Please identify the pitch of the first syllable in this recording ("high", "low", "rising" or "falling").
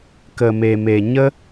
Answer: low